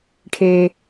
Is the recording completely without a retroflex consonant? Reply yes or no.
no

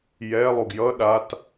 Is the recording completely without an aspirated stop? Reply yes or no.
yes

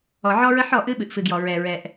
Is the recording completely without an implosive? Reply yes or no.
no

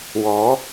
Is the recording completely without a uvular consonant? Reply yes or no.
yes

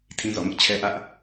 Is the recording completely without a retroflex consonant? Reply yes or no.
yes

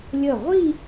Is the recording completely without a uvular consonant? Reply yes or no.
no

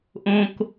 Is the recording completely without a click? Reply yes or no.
yes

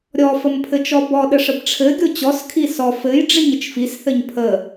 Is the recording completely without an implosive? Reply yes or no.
no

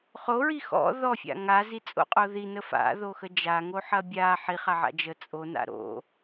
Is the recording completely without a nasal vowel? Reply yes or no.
yes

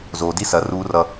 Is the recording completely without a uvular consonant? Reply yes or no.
yes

